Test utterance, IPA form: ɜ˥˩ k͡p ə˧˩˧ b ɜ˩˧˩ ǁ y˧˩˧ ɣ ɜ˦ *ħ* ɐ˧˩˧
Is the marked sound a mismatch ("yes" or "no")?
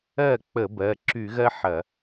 no